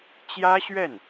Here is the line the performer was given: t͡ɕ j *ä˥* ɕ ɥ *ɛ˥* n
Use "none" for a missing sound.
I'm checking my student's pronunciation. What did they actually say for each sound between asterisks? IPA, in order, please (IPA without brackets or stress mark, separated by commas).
ä˥, ɛ˥˩